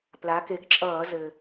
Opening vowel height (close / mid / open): open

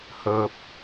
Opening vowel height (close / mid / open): mid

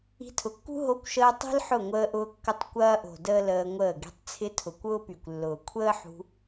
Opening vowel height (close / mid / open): close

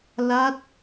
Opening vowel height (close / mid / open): open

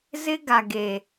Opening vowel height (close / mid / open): close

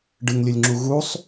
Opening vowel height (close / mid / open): close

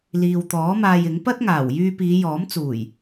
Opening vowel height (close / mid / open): close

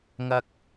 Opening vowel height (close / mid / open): open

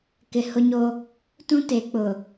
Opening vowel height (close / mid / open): close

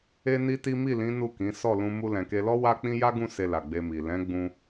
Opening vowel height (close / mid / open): mid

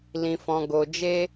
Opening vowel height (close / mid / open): close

